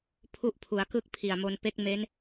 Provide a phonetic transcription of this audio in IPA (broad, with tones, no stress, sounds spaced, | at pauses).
pʰ u˥˩ ʔ pʰ u˨˩ a̯ k ɯ˥˩ k̚ pʰ i˨˩ a̯ m o˧ n p e˦˥ k̚ m e˦˥ n